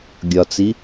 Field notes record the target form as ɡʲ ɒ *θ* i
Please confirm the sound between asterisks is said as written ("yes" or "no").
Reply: no